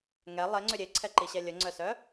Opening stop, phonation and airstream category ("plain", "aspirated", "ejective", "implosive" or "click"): click